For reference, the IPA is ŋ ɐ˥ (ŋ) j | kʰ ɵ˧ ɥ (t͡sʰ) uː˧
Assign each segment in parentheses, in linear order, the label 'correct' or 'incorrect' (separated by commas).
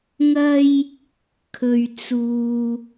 incorrect, incorrect